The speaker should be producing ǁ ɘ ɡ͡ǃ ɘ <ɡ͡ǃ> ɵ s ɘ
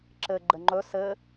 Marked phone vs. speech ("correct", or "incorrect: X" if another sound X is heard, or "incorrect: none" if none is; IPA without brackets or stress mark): incorrect: ŋ͡ǃ